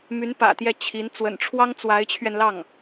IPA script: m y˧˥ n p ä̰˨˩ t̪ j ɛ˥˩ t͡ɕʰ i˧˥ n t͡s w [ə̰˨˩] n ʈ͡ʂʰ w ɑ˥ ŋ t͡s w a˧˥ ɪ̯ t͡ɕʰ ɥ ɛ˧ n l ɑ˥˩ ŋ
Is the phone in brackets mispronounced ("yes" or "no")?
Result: no